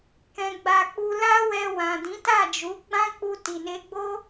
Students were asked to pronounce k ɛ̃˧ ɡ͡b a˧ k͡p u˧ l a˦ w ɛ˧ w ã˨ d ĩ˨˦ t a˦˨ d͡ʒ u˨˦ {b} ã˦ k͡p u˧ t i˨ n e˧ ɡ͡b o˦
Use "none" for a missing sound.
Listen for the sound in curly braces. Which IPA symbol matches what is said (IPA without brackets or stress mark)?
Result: ɡ͡b